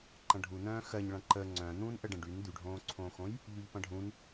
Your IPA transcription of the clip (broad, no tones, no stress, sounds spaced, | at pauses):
ǃ ɐ̃ ɖʱ u n̪ œ̃ː x ɜ ɲ ɭ ɐ̃ ǃ ə ŋ͡ǀ œ̃ n̪ ũː n ʔ ə ɖ ə̃ ɖ y n d̪ y ɖʱ õː ǀʰ õː x õ j | ʎ y ʎ p ɐ̃ ɖʱ ũ n